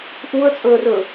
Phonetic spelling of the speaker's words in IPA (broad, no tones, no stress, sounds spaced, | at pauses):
ʔ u ə̯ t͡sʼ ɵ ə̯ r ɵ